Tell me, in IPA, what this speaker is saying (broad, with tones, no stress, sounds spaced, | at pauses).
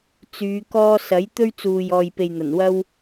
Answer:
t͡s yː˨˧ k ɔː˥ s ɐ˨˥ j t̪ ɵ˥ ɥ t͡s uː˨ j ɔː˨ j p e˨ j n̪ ɐ˨˩ n w ɐ˥ w